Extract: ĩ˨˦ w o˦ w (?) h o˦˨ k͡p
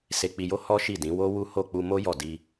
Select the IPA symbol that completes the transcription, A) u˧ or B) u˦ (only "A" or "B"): B